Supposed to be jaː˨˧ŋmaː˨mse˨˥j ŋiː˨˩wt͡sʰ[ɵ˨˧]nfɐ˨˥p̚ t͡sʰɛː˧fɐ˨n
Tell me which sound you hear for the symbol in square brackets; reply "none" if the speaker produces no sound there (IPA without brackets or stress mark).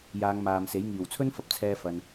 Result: ɵ˥